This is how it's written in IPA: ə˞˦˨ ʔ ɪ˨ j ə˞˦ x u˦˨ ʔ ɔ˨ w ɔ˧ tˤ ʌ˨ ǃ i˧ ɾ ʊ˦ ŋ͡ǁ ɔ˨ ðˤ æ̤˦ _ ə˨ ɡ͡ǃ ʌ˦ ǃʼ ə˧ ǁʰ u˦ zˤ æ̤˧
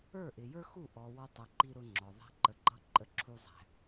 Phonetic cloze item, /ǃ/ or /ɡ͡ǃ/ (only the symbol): ǃ